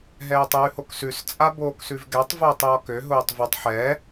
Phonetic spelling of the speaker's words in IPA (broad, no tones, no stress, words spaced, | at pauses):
ɦɛːtˤjʉhoksʉs t͡sʼaboːksʉvɡɛtˤ vʊːtˤjɔkø ɦʊːtˤvʊtˤ ħɛ